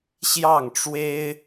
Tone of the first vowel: falling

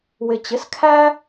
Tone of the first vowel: low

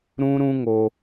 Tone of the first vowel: high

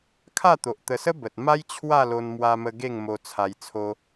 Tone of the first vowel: falling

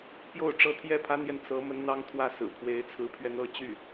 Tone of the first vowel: falling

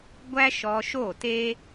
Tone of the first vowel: high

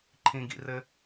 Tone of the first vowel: low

